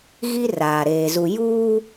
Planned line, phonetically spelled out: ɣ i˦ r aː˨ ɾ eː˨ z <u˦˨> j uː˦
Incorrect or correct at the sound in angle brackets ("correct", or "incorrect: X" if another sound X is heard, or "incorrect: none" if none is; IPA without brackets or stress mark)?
incorrect: u˨